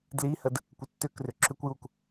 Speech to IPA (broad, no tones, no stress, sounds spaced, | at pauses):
d l i h ə d | kʷ ə tː ʏ k r ʏ ǁ ʏ kʷ j u k